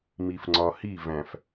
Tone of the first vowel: low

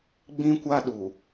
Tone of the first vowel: high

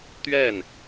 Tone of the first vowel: falling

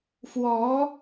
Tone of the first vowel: rising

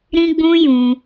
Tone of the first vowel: high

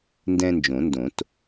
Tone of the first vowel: high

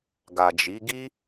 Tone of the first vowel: low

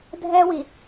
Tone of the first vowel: high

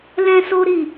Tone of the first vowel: high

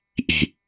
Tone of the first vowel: low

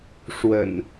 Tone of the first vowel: low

